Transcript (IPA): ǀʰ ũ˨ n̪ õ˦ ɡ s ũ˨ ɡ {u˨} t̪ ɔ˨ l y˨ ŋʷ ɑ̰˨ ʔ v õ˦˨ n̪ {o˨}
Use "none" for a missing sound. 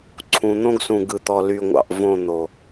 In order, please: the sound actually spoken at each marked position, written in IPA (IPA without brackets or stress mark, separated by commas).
ɯ˨, o˨